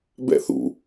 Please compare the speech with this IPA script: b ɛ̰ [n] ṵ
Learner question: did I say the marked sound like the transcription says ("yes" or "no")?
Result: no